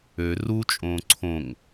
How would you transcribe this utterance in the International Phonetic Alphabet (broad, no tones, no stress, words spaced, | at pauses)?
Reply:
ø rut͡ʃʼõː ǀʰõŋ